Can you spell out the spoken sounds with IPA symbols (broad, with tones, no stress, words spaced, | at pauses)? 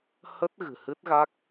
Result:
hə˦˥t̚ ɣɨ̤˨˩hɨ˦˥t̚ɣa˦˥k̚